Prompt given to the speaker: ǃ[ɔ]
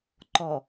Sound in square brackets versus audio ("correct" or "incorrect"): correct